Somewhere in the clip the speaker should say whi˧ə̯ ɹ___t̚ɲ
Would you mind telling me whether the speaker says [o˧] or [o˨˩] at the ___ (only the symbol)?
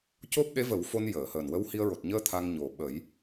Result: o˨˩